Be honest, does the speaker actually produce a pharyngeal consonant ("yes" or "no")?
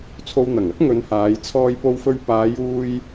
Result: no